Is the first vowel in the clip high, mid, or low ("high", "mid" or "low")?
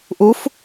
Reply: high